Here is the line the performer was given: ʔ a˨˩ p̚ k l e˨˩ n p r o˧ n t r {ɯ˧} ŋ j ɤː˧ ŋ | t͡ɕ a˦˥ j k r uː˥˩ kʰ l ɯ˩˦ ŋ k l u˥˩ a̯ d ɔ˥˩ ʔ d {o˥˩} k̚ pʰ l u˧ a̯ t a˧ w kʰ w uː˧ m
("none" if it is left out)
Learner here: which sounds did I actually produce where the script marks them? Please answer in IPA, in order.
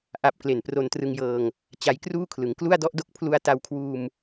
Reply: ɯ˧, o˥˩

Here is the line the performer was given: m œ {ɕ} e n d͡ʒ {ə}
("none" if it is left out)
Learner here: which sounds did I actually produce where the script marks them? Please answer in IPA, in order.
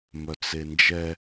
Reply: t͡s, ɛ

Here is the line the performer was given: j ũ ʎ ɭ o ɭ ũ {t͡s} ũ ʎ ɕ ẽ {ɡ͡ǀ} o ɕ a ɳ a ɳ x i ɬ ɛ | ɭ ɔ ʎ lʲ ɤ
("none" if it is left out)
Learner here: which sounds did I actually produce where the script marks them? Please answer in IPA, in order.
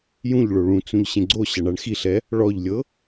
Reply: t͡s, ɡ͡ǀ

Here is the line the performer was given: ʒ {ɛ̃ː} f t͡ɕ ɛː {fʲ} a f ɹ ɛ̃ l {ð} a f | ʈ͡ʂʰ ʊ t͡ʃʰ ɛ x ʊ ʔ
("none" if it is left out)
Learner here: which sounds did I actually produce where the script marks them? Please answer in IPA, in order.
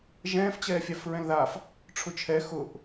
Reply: ɛ̃ː, fʲ, ð

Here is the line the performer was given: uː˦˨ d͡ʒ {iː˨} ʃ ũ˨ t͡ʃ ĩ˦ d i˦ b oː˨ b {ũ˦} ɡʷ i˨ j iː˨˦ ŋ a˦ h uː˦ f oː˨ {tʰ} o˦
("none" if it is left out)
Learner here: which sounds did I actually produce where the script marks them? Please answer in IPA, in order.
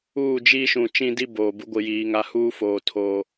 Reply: iː˦, u˦, tʰ

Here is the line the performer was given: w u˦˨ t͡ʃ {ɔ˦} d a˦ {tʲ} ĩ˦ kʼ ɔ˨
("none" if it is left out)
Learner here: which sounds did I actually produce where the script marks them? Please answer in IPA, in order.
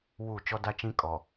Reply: ɔ˦, t͡ʃ

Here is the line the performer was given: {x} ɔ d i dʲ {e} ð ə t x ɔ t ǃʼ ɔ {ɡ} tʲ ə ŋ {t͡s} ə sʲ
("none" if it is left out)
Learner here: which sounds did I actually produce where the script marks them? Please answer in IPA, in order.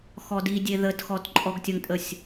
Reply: x, e, ɡ, tʼ

